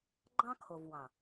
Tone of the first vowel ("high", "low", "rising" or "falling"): high